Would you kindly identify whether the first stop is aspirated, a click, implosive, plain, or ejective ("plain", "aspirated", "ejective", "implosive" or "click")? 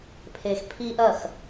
aspirated